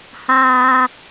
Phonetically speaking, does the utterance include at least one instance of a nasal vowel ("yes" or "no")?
no